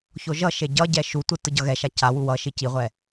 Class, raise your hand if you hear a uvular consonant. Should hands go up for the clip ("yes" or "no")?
yes